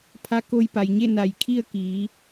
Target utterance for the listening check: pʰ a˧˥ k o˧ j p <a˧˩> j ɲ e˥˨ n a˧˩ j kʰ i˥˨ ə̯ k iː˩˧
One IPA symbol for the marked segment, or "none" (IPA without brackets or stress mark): a˩